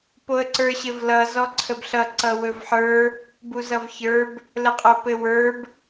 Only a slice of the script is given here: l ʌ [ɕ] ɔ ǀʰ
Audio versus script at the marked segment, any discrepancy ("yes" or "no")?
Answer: yes